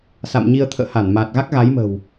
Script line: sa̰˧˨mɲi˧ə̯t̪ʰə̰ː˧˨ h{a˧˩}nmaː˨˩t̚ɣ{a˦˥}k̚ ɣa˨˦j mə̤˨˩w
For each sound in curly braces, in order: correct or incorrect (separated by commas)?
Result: correct, correct